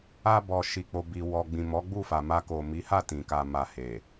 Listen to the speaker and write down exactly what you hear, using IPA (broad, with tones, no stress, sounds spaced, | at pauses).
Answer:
a˧ b ɔ˨ ʃ i˨ k͡p o˨ b i˨ w ɔ˨ ɡ͡b ĩ˨ m ɔ˨˦ ɡ͡b u˦˨ f a˨ m a˧ k o˨ m i˨˦ h a˦˨ t ĩ˨ k a˨ m a˨ h e˨